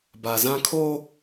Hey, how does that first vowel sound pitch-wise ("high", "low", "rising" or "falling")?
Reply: low